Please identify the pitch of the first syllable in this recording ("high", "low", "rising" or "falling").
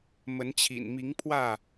rising